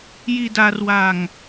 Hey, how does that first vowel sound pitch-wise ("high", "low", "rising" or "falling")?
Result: low